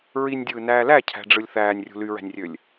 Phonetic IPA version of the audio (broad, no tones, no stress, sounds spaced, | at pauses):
ɹ i nʲ dʲ ɯː n æː l æ cʰ æ̤ ɖ͡ʐ ɯ lʲ θ æː nʲ rʲ ṳ l y ɹ æ̤ nʲ rʲ ø lʲ